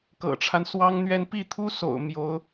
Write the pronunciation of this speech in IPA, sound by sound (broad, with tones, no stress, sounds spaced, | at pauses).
k ɤ̰˨˩ ʈ͡ʂʰ a˦ n s w ɑ˥ ŋ n̪ ɥ ɛ˥˧ n p i˥˩ t̪ʰ u˥ s o̰˨˩ ʊ̯ m j o˧˥ ʊ̯